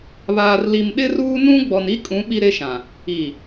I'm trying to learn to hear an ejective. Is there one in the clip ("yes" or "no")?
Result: yes